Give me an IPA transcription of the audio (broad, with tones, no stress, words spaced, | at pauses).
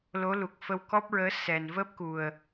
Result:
lo˧˥lu˨˩k̚ fə˧wkɔ˦˥p̚ɹəː˧˥ sɛ˨˩n vəː˦˥p̚ku˨˩ə̯